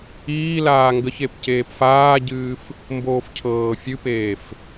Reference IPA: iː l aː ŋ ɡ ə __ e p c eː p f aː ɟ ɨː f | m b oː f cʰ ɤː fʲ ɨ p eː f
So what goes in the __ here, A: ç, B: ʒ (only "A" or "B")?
A